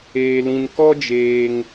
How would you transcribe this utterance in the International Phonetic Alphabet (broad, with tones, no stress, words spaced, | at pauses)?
eː˧lĩ˧n kɔ˦d͡ʒeː˧ŋ